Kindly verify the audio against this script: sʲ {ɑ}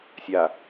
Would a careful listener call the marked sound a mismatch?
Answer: yes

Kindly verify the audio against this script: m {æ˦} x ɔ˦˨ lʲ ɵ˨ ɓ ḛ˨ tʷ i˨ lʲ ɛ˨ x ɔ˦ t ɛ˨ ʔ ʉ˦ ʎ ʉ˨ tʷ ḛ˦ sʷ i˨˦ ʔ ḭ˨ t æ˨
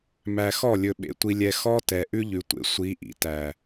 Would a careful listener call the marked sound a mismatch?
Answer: yes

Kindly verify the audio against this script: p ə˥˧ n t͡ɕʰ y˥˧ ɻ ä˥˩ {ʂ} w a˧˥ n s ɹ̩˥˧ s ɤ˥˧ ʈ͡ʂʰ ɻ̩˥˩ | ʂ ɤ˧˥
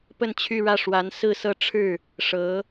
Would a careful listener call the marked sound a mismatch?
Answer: no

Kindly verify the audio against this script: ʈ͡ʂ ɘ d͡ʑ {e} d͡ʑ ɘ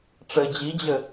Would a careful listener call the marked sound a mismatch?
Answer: yes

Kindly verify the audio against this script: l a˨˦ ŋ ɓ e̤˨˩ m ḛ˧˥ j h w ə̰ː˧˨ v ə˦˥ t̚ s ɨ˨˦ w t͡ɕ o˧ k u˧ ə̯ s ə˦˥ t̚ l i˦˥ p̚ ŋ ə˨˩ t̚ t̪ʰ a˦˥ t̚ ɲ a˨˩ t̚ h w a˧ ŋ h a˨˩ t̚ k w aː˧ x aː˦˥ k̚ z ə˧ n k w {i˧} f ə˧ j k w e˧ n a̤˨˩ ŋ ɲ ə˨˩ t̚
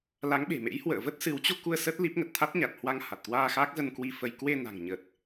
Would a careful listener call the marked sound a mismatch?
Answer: no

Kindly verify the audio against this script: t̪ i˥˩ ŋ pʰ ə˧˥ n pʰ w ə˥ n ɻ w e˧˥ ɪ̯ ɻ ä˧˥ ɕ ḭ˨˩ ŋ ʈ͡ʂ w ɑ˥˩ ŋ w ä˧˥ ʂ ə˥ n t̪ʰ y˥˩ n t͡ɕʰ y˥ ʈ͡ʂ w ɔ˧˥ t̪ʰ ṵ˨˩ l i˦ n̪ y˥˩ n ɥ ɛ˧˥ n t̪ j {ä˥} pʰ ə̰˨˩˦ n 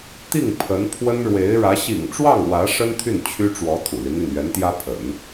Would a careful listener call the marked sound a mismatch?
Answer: no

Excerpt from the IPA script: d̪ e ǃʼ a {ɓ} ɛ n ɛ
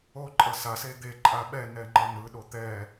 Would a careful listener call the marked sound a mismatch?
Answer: no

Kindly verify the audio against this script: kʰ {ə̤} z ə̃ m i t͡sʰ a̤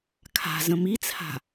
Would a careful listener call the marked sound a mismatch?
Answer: yes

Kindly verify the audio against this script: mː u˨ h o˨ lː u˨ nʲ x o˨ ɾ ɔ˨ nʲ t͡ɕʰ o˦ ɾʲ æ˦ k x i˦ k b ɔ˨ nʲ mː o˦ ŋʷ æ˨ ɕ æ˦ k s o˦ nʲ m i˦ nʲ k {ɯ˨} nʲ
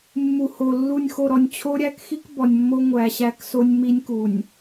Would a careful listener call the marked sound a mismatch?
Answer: yes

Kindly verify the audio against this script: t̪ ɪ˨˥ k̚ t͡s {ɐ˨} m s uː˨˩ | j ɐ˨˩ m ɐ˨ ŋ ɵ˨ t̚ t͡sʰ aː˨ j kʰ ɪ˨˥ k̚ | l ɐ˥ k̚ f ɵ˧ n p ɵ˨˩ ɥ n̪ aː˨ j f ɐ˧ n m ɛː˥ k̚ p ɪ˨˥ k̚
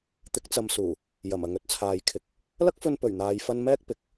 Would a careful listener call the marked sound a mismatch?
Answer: no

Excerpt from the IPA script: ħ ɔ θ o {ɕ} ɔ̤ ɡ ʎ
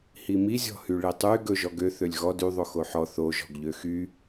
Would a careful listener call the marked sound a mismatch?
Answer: yes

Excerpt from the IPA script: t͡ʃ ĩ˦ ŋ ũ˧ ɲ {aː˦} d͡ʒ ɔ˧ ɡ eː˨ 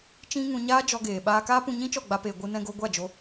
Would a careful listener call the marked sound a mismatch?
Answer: no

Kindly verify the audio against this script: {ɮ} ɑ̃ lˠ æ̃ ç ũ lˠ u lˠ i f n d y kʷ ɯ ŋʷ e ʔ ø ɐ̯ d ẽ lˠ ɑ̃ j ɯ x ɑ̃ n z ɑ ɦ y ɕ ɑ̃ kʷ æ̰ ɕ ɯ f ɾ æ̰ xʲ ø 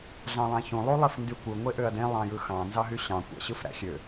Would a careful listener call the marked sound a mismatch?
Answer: no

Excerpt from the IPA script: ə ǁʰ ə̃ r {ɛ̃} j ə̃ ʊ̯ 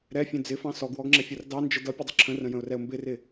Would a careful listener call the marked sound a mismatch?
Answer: yes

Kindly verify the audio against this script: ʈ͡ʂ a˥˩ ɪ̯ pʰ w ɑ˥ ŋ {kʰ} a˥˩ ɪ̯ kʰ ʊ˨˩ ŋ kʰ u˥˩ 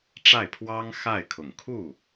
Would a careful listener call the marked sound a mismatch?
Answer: yes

